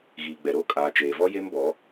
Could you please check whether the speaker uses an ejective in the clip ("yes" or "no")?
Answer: yes